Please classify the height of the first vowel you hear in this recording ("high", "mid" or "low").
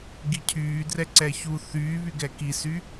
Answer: high